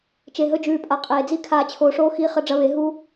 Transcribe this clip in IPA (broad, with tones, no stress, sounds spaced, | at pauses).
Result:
t͡ʃ e˨ ɦ ɵ˧ d͡ʒ ʉː˨ pʼ a˨ qʼ eː˨ d͡z i˦ kʰ aː˧ t͡ɕʰ oː˧ ʂ oː˦ x iː˦ χ ɐ˦ ɖ͡ʐ ɐ˧ β e˨˦ ɦ u˦